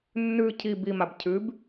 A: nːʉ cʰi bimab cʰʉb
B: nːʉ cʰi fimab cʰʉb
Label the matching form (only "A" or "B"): A